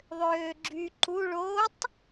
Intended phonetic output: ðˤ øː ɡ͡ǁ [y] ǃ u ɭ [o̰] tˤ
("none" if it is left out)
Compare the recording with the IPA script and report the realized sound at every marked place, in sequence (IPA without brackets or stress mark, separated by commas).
y, o